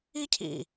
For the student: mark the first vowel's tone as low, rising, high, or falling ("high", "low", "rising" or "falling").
high